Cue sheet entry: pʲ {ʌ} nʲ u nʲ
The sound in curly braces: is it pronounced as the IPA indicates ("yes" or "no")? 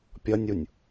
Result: yes